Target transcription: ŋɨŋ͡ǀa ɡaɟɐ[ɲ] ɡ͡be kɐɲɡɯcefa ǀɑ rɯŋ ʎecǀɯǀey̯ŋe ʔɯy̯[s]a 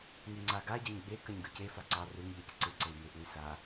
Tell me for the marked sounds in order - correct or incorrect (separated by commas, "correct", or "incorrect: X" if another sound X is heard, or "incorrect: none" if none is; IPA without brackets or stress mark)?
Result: correct, correct